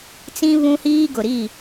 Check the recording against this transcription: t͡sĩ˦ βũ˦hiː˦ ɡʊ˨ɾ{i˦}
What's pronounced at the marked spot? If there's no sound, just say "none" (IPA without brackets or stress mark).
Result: i˦˨